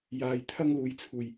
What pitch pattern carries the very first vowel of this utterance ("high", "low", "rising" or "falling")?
low